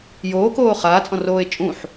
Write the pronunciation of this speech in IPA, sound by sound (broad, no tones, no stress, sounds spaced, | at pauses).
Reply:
j oː k oː χ aː t͡sʼ ɔ̃ r oː e̯ t͡ʃʼ ũ ħ